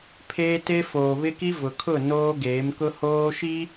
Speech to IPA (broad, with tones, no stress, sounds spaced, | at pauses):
pʰ eː˦ t e˦ f oː˨ β ɪ˦ k i˦ v ʊ˨ kʰ ʊ˦˨ n oː˦ ɡ eː˨˦ m k ʊ˦ h oː˦ ʃ i˦